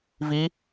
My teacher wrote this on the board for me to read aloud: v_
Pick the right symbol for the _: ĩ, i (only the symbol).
i